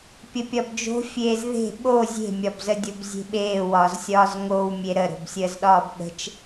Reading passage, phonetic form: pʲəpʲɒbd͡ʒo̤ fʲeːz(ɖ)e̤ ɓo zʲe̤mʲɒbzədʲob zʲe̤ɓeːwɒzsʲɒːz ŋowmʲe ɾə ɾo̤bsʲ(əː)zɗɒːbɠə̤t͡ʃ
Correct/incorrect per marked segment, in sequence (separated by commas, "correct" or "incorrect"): incorrect, correct